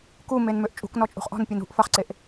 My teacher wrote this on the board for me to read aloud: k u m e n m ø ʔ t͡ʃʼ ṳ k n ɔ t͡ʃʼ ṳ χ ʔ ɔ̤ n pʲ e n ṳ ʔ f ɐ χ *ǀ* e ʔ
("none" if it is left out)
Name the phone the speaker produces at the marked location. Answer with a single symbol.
ǀ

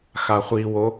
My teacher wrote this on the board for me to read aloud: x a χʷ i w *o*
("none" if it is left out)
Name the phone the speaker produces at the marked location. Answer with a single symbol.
o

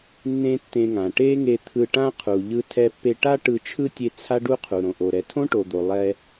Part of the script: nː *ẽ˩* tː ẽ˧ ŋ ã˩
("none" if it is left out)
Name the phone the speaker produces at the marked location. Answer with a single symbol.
ẽ˥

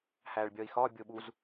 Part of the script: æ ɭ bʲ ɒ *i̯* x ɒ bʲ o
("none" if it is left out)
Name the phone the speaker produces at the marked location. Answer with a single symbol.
i̯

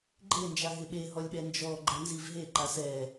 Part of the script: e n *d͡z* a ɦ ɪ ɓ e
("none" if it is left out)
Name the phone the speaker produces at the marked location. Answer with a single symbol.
d͡ʒ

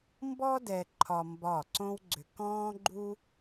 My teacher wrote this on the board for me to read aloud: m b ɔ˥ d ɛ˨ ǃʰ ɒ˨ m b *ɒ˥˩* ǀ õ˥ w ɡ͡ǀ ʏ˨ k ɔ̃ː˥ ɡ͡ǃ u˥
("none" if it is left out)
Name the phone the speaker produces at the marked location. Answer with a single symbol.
ɒ˥˩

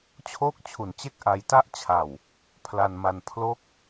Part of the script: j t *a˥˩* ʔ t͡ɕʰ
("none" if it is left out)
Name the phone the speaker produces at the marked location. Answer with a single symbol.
a˥˩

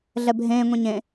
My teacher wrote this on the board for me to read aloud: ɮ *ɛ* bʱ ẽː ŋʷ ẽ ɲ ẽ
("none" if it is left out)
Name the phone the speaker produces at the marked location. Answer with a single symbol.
ɛ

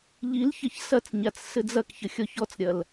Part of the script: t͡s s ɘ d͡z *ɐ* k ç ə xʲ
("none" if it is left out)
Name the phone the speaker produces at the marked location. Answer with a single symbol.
ɐ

